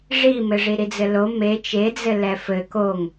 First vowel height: high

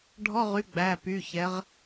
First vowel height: mid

